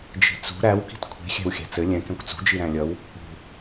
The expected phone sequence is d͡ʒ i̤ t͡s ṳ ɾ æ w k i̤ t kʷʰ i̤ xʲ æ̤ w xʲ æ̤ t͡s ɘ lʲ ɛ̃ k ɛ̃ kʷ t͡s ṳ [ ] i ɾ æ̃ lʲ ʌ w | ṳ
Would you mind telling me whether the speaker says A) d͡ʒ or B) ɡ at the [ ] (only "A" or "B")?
A